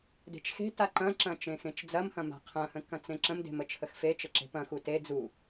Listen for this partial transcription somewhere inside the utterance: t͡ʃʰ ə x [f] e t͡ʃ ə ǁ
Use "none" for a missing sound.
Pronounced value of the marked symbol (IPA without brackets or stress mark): f